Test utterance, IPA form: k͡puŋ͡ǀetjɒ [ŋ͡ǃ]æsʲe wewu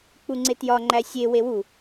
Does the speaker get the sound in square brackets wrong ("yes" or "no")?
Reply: no